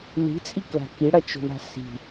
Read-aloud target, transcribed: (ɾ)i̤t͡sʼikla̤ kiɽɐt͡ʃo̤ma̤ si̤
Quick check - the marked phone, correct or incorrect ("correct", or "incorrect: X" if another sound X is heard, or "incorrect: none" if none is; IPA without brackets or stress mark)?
incorrect: l